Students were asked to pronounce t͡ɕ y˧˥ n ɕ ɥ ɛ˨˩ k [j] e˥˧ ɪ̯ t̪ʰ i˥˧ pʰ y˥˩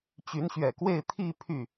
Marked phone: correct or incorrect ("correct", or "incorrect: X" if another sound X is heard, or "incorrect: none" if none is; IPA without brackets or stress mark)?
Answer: incorrect: w